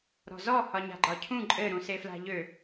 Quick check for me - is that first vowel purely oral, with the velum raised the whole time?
yes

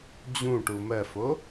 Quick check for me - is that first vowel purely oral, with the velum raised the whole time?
no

